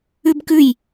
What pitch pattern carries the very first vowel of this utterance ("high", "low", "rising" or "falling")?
high